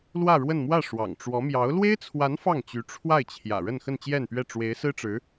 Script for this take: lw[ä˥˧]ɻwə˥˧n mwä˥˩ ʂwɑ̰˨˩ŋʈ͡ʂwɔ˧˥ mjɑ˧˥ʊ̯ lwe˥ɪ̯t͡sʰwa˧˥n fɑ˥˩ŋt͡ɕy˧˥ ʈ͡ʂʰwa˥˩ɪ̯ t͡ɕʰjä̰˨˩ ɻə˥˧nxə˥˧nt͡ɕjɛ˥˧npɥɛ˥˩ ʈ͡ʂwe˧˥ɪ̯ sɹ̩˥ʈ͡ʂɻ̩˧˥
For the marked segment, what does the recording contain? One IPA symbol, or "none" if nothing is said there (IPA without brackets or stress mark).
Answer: ä˥˧